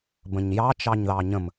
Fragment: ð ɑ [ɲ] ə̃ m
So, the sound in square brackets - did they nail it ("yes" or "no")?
yes